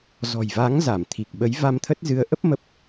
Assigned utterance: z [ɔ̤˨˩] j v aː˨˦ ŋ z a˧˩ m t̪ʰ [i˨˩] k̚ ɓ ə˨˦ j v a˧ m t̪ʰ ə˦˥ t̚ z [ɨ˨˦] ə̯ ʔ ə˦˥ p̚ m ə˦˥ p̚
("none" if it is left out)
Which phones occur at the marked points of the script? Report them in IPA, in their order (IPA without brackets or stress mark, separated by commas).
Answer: ɔ̤˨˩, i˨˩, ɨ˨˦